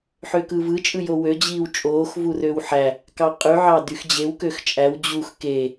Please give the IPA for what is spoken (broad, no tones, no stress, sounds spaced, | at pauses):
ħ ø k ɯ v ɯ t͡ʃʼ ɯ j o w ø d͡ʑ iː w t͡ʃʼ oː x v u r ø w ħ æ | k ɑ qʼ y ʕ ɑ d y x d͡ʑ e w k ø x t͡ʃʼ æ w d͡ʑ u x k e